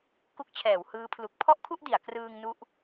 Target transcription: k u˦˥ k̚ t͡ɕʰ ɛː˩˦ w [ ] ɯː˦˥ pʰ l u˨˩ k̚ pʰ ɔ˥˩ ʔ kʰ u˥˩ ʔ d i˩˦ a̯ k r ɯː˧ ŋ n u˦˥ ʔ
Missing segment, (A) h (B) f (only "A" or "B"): A